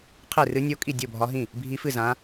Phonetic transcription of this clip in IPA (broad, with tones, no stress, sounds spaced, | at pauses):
qʰ e˥˩ r ɨ˧˥ nʲ o˧˥ kʼ i˥˩ dʲ o˥˩ bʱ ɒ˧˥ ɦ ĩ˥˩ | bʱ i˧˥ f ɨ˥˩ z ã˧˥